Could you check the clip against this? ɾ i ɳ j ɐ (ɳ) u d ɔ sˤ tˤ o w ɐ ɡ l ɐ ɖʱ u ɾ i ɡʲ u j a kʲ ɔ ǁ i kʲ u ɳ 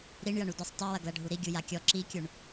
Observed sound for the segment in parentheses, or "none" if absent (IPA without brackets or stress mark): ɳ